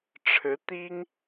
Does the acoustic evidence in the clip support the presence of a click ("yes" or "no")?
no